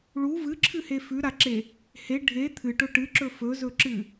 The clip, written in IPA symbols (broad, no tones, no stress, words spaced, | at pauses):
ɭu vɨǁʰɨhe fʉɾaǁe | he ɖʱe t̪ʰɨʈɵ ʈɨǁɵ fɵzɵǁɨ